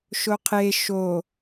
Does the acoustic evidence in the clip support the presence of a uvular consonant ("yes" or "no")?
yes